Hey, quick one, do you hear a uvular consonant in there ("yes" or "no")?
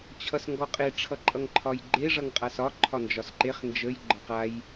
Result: yes